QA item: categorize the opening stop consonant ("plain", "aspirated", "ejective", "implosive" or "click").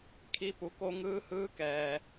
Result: aspirated